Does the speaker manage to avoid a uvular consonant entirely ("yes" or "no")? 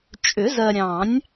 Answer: yes